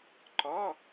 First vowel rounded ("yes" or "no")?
yes